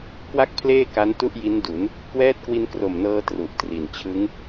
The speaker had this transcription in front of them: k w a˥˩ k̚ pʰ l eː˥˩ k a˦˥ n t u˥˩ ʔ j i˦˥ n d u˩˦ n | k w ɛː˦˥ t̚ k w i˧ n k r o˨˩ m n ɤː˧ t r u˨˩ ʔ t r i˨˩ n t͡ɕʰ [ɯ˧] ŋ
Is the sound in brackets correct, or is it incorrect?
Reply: incorrect